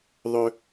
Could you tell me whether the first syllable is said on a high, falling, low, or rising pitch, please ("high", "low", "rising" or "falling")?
high